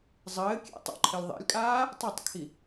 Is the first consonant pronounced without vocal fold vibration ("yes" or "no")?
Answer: no